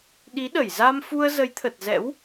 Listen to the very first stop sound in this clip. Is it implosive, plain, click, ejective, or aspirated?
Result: implosive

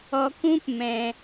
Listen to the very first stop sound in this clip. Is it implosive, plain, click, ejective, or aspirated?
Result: plain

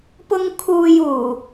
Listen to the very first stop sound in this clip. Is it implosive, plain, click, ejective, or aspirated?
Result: plain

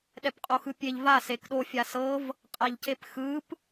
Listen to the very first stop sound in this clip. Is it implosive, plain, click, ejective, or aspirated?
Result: implosive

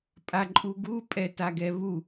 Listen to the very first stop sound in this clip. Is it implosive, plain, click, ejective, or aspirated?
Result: ejective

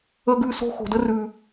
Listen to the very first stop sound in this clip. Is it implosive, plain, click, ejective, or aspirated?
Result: plain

